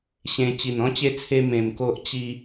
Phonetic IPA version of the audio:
ɕ ẽ˧ t͡ɕ i˨˩ n ɔ̃˦ t͡ɕ e˧ t͡sʰ e˧ m ẽ˧ m k o˦ ʔ t͡ɕ i˧

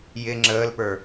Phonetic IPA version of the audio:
j ɪ ŋ͡ǁ əː l p ə˞

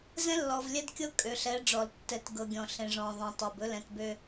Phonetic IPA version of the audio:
z ɛ̃˦ lː ɔ˨ v lʲ ɛ˦ d kʲ ɤ˦ kʼ ø˨ ɬ ɛ˨˦ ɖ͡ʐ ɔ˨ l tː ɛ˨˦ t ɡ ɤ˨ ɡʲ ɔ̃˨ ɬ ẽ˨ ʐ ɔ̃˨ ðˤ ɛ̃˨ tˤ ø˨ b ɵ˦ l ɛ̃˨ t b ø˦

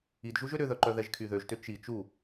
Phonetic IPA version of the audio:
i d ʒ u ʒ ø ɾ ʏ ð œ ǃ œ ð ɛ ʒ kʰ y ð ø ʒ t ʏ t͡ʃ i t͡ʃ u

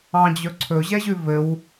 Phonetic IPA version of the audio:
ɑ̃ d͡ʑ ɵ ǀʰ ɵ ʑ ɛ ʑ ʉ v ɘ w

